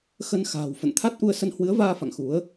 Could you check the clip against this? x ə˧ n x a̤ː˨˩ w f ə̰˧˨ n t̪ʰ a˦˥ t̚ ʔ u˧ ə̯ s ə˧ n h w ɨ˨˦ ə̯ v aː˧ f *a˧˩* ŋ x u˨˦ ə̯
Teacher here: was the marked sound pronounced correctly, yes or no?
no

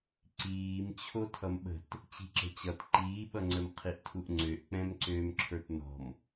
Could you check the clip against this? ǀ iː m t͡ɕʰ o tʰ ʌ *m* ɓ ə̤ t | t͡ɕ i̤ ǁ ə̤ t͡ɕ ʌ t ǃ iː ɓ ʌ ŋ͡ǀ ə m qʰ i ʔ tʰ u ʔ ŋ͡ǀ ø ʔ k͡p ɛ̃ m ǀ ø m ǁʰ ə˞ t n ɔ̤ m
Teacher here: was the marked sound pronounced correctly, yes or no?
yes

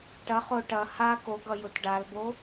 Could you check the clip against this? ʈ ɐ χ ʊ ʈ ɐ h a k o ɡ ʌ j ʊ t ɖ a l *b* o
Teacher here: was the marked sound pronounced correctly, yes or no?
yes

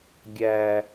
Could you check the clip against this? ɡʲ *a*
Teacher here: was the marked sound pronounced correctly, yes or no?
no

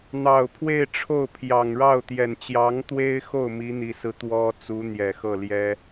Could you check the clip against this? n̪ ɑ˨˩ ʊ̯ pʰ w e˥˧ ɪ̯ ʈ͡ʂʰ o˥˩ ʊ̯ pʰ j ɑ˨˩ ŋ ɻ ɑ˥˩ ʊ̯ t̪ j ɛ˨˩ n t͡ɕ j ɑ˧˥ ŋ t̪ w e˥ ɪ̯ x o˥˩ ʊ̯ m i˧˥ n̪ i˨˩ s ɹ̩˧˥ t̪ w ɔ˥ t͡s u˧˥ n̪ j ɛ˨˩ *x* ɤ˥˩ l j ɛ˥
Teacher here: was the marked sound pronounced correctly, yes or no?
yes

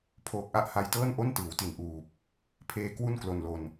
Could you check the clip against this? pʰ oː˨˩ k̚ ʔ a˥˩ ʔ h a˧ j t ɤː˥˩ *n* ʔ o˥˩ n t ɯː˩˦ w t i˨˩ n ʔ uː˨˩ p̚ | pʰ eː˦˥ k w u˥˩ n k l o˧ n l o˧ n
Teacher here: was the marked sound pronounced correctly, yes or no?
yes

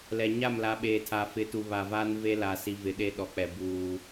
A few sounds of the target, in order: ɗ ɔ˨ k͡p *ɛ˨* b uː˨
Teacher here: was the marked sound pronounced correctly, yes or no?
yes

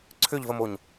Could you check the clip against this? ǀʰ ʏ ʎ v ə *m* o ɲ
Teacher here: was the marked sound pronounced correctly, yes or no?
yes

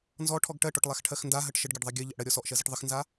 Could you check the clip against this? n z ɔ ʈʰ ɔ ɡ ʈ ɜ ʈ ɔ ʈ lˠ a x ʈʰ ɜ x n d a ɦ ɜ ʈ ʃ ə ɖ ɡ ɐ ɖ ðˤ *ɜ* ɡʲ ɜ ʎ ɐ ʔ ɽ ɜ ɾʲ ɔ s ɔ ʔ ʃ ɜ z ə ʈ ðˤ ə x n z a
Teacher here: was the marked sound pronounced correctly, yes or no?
yes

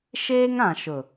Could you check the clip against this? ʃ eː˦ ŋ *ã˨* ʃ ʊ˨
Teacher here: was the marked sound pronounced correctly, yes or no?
yes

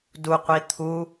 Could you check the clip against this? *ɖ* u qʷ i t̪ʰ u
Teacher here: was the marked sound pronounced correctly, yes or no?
no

